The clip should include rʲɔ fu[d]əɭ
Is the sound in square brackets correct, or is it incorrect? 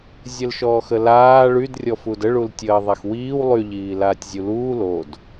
correct